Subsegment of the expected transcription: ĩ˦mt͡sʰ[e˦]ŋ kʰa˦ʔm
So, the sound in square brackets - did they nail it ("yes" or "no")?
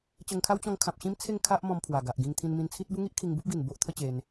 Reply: no